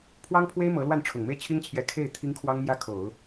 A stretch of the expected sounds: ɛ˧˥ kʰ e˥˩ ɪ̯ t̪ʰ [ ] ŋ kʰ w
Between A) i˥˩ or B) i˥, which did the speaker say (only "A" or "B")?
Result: B